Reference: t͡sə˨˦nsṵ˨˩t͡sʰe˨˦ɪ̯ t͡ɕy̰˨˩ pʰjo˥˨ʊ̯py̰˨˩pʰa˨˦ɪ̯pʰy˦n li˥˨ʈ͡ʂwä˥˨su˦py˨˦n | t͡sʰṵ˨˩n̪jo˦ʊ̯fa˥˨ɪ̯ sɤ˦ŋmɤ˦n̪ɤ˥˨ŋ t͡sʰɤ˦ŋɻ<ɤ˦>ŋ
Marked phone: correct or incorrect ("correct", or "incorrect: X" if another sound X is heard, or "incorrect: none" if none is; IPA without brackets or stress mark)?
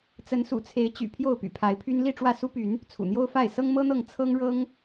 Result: correct